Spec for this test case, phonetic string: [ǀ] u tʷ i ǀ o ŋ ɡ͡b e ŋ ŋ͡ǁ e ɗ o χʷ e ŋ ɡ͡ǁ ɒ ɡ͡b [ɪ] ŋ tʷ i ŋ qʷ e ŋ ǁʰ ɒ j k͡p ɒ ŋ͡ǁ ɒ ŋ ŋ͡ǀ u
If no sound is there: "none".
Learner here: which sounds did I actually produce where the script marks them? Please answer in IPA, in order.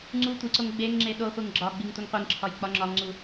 ŋ͡ǀ, i

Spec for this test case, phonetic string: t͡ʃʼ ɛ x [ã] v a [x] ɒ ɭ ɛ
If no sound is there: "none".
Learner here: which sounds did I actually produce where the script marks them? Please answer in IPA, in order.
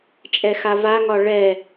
a, ŋ

